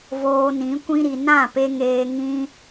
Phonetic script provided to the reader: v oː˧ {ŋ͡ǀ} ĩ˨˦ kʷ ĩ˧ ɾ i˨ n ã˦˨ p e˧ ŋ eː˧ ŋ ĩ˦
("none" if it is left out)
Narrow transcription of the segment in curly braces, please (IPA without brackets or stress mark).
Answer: n